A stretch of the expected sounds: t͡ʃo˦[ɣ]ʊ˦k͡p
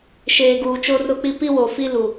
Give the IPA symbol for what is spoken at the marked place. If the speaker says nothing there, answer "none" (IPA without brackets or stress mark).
r